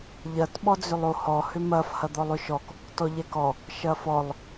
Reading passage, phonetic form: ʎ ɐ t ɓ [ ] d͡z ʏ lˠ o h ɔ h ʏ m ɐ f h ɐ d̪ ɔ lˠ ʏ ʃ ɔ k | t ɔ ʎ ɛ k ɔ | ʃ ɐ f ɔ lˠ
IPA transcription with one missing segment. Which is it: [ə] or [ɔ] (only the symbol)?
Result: ɔ